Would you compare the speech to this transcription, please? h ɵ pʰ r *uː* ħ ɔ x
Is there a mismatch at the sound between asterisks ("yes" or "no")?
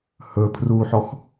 no